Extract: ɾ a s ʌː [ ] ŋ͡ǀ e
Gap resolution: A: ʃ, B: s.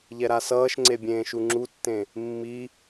A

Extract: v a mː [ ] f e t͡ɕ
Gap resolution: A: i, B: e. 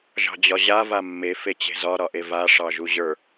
B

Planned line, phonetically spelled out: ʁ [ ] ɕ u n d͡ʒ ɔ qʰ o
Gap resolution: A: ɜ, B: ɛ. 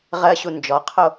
A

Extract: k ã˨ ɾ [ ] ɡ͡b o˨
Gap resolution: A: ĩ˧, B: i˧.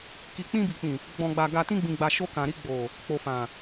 B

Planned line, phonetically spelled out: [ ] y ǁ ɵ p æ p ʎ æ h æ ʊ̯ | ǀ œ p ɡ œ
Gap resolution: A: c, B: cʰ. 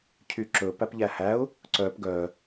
B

